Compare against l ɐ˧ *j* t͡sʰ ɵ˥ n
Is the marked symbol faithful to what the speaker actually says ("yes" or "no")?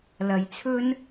yes